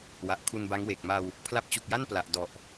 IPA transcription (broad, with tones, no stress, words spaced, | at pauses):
wa˨˩ʔkʰu˧nba˦˥ŋweː˨˩k̚ ma˧w | pʰla˦˥p̚t͡ɕu˨˩k̚ja˥˩n pla˨˩ʔdɔ˨˩ʔ